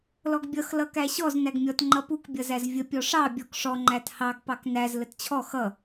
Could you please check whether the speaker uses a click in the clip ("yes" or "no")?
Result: yes